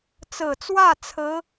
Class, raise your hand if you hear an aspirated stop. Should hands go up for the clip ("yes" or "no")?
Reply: yes